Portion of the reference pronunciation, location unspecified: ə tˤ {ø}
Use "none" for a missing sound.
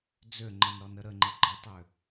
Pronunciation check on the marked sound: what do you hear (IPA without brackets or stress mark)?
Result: ø